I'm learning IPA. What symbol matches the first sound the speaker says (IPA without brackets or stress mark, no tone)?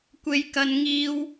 kʷ